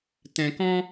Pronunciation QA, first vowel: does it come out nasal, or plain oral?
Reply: nasal